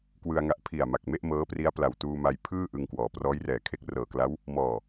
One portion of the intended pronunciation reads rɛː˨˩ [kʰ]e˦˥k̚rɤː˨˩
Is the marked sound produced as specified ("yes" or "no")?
yes